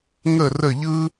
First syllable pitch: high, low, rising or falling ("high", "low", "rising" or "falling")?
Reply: falling